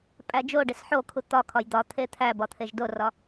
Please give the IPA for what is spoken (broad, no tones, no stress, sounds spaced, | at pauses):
pʼ æ d͡ʒ o ɖ e s ħ o kʰ u t̪ ɒ kʰ ɒ j d̪ ɒ t̪ʰ e t̪ʰ æ b ɒ t̪ʰ e ʒ d o r ɒ